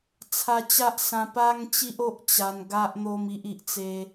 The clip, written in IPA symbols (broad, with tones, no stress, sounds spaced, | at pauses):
t͡sʰ a˧ t͡ɕ a˦ ʔ s ã˧ p a˦ ŋ t͡ɕ i˦ ʔ o˦ ʔ t͡ɕ a˧ n ɡ a˦ ʔ n̪ o˦ m i˦ ʔ i˨ ʔ t͡s e˦